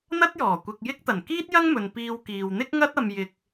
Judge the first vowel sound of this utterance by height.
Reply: low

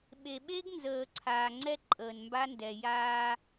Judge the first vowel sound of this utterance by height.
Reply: mid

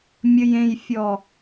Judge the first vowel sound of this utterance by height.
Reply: mid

